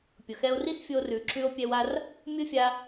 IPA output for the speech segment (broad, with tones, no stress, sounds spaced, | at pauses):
pʲ ʊ˩ x ɛ˧ o̯ r i˥ s fʲ o˧ r ʉ˩ ǁʰ ʉ˧ o̯ pʲ ɛ˧ w a˧ r | mʲ ʊ˥ fʲ a˧